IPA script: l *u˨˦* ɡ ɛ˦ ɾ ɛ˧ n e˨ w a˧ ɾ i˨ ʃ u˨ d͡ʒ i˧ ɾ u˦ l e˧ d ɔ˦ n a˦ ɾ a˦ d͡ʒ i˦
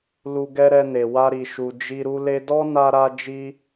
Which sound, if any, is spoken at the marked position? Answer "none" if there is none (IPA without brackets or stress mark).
u˧